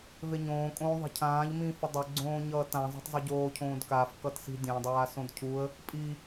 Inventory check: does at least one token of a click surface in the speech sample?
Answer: yes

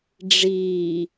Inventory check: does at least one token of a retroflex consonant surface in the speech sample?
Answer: yes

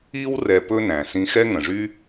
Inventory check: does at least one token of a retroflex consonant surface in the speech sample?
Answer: yes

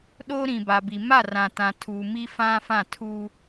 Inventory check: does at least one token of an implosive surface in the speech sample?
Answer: yes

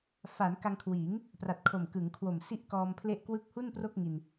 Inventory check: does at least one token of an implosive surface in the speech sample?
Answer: no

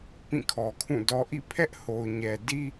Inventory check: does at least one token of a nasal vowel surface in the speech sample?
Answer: yes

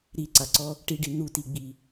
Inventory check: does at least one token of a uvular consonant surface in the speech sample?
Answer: no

